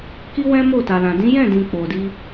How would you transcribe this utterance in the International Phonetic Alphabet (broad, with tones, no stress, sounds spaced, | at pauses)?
k i˦ w ɛ̃˦ m o˦˨ t a˨ l ã˨ d ĩ˨˦ j ɛ̃˦˨ d ĩ˨ k͡p o˨ d i˧